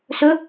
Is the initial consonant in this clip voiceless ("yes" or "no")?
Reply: yes